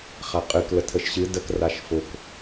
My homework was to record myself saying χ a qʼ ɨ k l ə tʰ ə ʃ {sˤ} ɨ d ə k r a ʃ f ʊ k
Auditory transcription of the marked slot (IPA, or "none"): ɕ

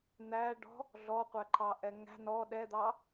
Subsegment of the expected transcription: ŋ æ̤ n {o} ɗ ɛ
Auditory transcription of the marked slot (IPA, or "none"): ɔ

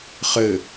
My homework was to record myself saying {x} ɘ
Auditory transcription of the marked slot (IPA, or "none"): χ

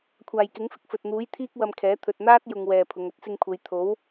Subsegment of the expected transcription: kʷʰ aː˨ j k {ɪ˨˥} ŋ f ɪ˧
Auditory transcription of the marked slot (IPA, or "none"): ɪ˨˥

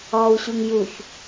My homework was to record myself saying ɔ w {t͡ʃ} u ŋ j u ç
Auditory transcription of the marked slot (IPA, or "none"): ɕ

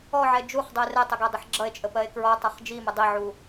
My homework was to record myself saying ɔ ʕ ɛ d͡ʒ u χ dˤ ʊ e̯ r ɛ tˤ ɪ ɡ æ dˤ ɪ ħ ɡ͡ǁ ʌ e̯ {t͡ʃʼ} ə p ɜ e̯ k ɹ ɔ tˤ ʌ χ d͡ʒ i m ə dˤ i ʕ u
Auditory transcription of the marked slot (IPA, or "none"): t͡ʃʼ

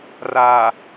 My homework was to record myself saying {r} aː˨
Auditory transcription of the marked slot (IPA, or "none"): r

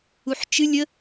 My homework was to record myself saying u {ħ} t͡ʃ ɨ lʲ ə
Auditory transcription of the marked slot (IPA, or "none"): ħ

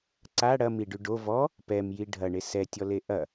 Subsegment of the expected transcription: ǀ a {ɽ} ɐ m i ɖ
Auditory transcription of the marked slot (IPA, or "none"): ɽ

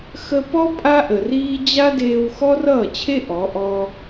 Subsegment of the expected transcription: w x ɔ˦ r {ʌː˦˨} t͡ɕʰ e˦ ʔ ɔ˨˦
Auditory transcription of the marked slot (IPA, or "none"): ʌː˦˨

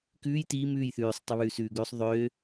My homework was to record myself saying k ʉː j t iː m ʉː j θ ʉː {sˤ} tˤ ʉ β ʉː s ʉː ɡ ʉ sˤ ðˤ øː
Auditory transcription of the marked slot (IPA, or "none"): sˤ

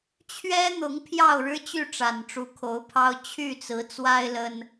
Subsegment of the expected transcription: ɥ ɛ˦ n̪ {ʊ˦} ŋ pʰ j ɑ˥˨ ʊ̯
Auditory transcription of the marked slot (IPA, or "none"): ʊ˨˦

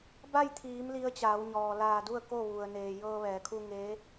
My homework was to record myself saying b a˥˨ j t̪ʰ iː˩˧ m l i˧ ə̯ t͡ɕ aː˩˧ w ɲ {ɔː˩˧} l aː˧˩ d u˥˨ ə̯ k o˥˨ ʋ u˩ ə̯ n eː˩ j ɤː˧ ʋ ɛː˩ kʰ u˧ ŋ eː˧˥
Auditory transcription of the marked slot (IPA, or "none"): ɔː˩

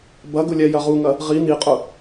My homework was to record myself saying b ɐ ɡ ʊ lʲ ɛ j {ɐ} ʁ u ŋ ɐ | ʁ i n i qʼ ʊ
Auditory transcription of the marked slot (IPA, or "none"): ɐ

